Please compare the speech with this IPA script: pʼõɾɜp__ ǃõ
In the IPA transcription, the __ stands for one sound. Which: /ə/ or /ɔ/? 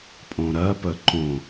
ə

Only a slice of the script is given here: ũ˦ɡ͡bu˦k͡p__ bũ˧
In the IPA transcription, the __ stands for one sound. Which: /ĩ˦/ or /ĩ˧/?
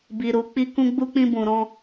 ĩ˦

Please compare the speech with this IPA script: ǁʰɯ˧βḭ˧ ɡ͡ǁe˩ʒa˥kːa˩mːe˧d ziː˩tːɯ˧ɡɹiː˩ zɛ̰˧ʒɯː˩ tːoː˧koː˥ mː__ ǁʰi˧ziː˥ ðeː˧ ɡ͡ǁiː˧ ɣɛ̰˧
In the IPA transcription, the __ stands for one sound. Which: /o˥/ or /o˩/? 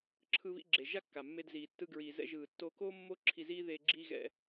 o˥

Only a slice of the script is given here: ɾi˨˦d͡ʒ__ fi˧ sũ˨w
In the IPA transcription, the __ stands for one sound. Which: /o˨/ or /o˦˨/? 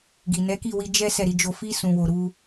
o˦˨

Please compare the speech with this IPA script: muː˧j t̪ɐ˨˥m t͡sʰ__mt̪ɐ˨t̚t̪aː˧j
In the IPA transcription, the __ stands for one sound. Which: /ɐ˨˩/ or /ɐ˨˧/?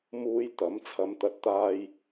ɐ˨˧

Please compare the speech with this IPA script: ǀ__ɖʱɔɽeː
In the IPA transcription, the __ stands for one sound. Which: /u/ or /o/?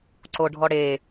o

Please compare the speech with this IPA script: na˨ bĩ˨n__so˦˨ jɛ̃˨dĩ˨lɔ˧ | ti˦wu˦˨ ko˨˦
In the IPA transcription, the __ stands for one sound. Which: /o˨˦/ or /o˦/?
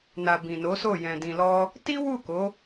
o˨˦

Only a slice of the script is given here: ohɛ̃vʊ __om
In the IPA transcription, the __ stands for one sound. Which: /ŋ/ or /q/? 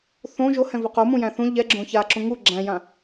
q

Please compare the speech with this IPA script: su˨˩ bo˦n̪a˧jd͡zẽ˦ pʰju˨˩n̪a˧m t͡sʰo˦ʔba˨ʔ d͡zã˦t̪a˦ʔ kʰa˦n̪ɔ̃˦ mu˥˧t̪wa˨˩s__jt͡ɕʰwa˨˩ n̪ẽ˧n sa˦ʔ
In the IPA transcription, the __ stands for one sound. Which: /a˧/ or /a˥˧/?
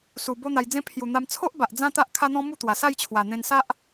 a˥˧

